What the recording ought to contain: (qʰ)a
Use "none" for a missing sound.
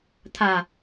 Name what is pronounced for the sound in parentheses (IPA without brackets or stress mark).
t̪ʰ